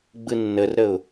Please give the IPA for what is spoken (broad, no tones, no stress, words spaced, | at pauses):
ɡ͡bɯnːərɾəʊ̯